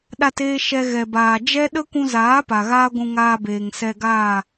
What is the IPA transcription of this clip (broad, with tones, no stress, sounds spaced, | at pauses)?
ɗ a˧ t eː˧ ʃ ɛ˧ ɣ ɛ˨ b aː˨ d͡ʒ ɛ˦ ɗ ə˦ kʷ ũ˧ z aː˨˦ p a˨ ɣ aː˦ ɡʷ ũ˧ ŋ aː˧ b eː˨ ŋ s ɛ˧ ɡ aː˦˨